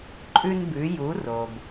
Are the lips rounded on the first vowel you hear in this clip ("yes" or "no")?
yes